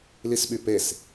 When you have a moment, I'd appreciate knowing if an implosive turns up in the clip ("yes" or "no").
yes